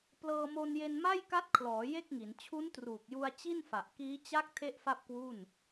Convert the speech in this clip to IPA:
plɤː˧mo˧nje˧n ma˥˩jka˦˥t̚kʰlɔː˩˦ je˥˩k̚ŋi˩˦n t͡ɕʰu˦˥ntruː˨˩k̚ju˧a̯ t͡ɕi˥˩nfa˨˩ʔkiː˦˥ t͡ɕa˦˥k̚ tʰe˥˩ʔfa˥˩p̚kwu˥˩n

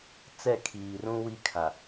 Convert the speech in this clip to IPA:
t͡sɛ˦˨kʰiː˨rũ˦ wi˦kʰa˨

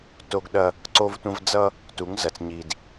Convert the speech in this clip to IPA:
to˦ɡɗɐ˦ | ǀo˦vtʷɐ̃˦v d͡zʌ˦ | tu˨˦ŋzɐ˨t͡s ɲi˨d

